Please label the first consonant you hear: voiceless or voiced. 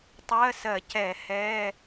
voiceless